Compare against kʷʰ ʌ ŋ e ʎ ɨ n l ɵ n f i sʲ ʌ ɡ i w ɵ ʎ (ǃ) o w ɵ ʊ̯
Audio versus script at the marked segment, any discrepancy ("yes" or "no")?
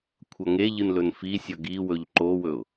no